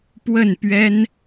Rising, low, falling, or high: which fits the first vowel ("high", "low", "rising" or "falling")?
falling